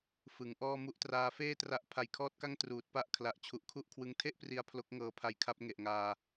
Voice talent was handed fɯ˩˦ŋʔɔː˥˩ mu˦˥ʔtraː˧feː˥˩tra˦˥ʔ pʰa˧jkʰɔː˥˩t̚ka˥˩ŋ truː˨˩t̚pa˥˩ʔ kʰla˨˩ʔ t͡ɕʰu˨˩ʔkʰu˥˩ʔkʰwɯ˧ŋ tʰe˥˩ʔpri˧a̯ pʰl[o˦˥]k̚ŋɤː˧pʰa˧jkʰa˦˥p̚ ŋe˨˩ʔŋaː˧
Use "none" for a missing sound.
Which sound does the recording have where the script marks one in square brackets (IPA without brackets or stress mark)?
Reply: o˦˥